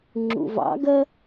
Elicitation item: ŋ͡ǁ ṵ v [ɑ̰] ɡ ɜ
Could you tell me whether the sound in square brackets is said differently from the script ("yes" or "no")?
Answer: no